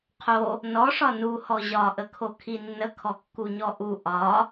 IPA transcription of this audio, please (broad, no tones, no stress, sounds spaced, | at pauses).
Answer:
qʰ o | n ɔ ʂ ɒ n u h ɔ ʑ ɒ ʔ ə kʰ o kʰ i nː ə kʰ ɔ kː u ɲ ɔ ʔ u ʔ ɒ